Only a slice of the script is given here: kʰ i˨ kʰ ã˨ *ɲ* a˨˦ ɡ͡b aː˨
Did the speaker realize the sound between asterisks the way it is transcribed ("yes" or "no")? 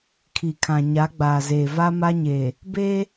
yes